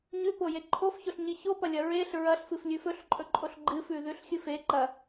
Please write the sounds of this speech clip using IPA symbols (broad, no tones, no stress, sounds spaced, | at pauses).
ɲ ʉ p o j e ǃʰ o f ç o ɬ ɲ i ç o p ɐ lʲ ɐ ɹ e ɬ ɹ ɐ ɬ f ɨ f lʲ ʉ f ɵ ɬ ǃʼ ɵ ǃʼ o ɬ ɡ͡ǃ ɨ f ʉ ð ʉ ɬ xʲ ɨ f e ǃ ɐ